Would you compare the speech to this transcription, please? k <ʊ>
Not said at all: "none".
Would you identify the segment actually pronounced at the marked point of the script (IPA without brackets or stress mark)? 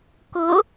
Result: ʊ